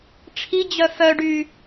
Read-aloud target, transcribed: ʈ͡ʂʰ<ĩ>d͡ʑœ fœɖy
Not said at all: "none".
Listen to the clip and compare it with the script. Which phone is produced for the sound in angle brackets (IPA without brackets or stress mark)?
i